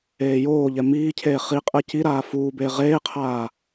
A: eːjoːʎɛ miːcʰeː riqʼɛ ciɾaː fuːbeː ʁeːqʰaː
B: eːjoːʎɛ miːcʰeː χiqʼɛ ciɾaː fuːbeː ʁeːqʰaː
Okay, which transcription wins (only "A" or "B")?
B